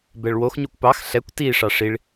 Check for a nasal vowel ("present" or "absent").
absent